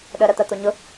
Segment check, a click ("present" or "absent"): absent